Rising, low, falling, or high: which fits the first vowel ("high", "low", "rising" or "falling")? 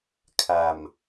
low